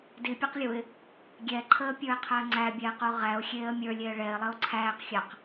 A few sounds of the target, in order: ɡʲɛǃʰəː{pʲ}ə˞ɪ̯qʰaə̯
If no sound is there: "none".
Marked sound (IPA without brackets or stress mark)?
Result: pʲ